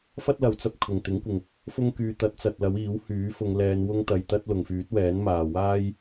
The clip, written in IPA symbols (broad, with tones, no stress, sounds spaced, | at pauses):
f ɐ˥ t̚ l ɐ˨˥ w t͡s ɐ˨ p̚ kʰ ʊ˨˩ ŋ t̪ ɪ˨˥ ŋ kʷ ɪ˨˩ ŋ | f ʊ˥ ŋ k yː˧ t̪ ɐ˨˥ t̚ t͡s ɐ˨ t̚ l ɐ˨˥ w iː˨˥ w h yː˨˥ f ʊ˨˧ ŋ l ɛː˨˧ n w ʊ˥ ŋ t̪ ɐ˧ j t̪ ɐ˥ t̚ l ʊ˨ ŋ f yː˨˥ t̚ w ɛː˨˥ n m aː˨ w aː˥ j